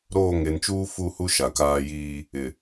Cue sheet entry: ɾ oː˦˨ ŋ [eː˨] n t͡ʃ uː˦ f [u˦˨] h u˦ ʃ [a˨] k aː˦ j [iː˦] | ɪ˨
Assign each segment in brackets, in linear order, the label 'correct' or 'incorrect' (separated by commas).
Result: incorrect, correct, correct, correct